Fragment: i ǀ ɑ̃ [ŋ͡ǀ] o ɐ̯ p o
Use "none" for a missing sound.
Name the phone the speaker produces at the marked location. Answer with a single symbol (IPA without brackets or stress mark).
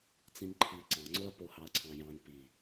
ŋ͡ǀ